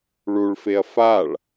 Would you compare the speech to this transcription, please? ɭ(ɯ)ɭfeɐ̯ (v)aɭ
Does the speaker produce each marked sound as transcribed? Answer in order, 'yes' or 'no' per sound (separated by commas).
no, no